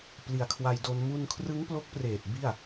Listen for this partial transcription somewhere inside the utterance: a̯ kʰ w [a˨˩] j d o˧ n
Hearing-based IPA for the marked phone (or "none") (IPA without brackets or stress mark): a˧